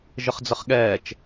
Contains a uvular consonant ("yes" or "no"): yes